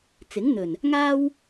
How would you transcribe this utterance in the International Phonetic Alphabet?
t͡sɪ˨˥ŋn̪ɵ˨˩n | ŋaː˥w

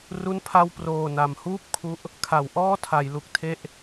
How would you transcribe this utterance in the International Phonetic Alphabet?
ru˥˩npʰa˥˩w proː˨˩na˩˦mhuː˥˩p̚kʰu˦˥ʔ | kʰa˩˦wʔɔː˥˩tʰa˩˦j lu˨˩k̚tʰe˦˥ʔ

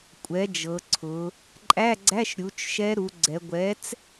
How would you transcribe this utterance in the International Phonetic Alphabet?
kʷʼɛ˩˥d͡ʒɤ˩˧ ǀʰʊ˩˧ | ǃʼæ˧˥˧ɡ͡ǀæ˧˥˧ʃ ɾʲu˩˥t͡ʃ ʃɛ˧˥ɾu˩˧ɡ͡ǀɛ˩˧ ɡʷɛ˩˥t͡s

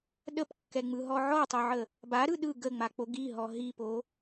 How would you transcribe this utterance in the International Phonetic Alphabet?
ɗəpkːɛŋ͡mɯɦɔ ʕɔtˤoʕə | baɾɯ ɗɯ ɡəŋ͡mak͡po ɡiɦɔ ɦipo

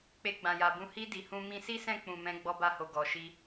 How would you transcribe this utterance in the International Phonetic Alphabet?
k͡pe˧ɡ͡bã˨ja˨bũ˧ hi˧ di˨hũ˧ mĩ˧si˦sɛ̃˦˨k͡pũ˨ mɛ̃˨˦ ɡ͡bɔ˧ba˧ho˨ ɡɔ˨ ʃi˧

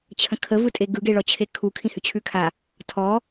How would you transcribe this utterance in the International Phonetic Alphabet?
t͡ɕʰə̃kʰəvɯtʼe ɡɯɡe ɭɔt͡ɕʰekʰu kʰĩhʉt͡ɕʰʉkʰa | tʰɔ

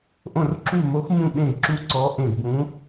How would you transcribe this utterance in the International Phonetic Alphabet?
ʔõ˧˩rǁu˧˩mo˨˦xmũ˧˩ ɓẽ˧˩ɡǁu˧˩ ǀɔ˨˦ʔẽ˧˩ɡbũ˨˦

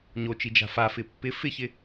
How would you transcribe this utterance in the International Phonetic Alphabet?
ɲot͡ʃi d͡ʒa̤fafɪ pːɪ fɪçɪ

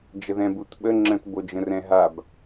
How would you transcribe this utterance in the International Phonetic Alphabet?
d͡ʒəðɛ̃but ɓə ŋ͡ǁə̃tbod͡ʒə̃r ɛ̃ɦab

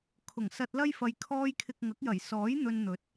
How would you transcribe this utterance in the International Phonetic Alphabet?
kʰʊ˨˩ŋsɐ˧t̚lɐ˥jfɐ˧j kʰɔː˧jkʰɪ˨k̚ ŋɐ˨˥k̚jɐ˨˩j sɔː˨˥j n̪ɵ˧nn̪ɵ˨˥t̚

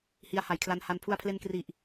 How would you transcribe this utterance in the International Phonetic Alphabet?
hi˧a̯ha˩˦jkʰla˧nha˧n pʰu˧a̯pʰle˧nkri˨˩ʔ

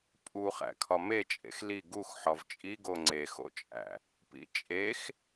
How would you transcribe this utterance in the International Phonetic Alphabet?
pʼuχæ̰kʰɒ met͡ʃʼḛx li ɡux ħɒvt͡ʃʼiɡo ŋ͡ǀexo̰t͡ʃʼæ̰ | pḭt͡ʃʼex

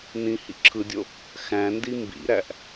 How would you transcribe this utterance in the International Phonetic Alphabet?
nĩ hḭǁʰɯdʲo | xæ̃ndi mbḭɾæʔ

